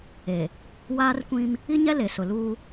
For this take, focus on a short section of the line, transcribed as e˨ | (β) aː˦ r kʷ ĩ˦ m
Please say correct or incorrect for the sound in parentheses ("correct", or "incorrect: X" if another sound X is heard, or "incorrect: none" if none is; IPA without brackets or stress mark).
incorrect: w